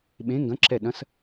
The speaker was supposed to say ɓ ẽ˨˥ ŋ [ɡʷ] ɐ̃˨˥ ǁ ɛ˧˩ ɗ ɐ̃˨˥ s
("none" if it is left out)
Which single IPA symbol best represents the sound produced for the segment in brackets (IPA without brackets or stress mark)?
ɡ